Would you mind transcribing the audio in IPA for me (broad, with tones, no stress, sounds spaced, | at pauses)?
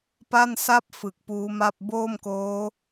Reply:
p a˥˩ n s a˥˩ p̚ f ɯ˨˩ k̚ p uː˦˥ m a˥˩ p̚ b oː˥˩ m k oː˦˥